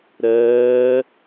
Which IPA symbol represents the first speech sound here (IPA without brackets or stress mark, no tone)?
ɾ